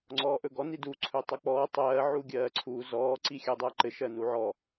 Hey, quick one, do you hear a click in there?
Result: yes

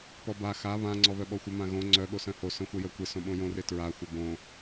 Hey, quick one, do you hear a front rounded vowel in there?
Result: yes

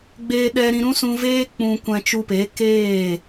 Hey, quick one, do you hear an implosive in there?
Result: yes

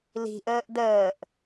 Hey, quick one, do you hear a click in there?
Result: no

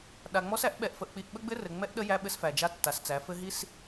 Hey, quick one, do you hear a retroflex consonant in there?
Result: no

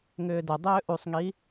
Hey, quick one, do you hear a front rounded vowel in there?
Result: yes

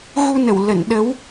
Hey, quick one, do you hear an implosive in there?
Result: yes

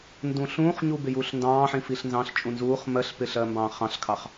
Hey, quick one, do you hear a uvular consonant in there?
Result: yes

